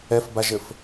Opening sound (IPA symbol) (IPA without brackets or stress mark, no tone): ɛ